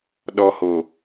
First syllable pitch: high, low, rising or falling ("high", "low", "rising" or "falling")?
high